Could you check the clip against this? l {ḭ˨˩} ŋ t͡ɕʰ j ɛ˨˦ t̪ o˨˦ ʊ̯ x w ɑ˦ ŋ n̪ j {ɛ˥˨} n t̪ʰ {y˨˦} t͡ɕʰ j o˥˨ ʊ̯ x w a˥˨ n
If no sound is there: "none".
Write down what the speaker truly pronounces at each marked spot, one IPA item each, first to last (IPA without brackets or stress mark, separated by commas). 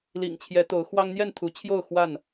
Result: ḭ˨˩, ɛ˥˨, u˨˦